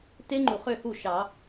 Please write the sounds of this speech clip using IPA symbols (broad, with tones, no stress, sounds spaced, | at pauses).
t e˦˥ ŋ͡ǃ u˩ χ ø˥˩ h u˥˩ ʃ ɑ˨˩˦